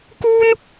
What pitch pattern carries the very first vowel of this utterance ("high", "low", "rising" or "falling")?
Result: high